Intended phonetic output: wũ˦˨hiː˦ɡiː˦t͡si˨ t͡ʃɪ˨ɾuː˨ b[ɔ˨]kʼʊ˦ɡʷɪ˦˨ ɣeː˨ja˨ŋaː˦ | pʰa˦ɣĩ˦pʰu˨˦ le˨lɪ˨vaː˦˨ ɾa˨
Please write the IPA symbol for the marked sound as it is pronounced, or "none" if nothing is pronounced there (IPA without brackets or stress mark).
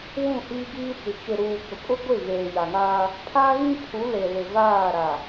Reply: ʊ˨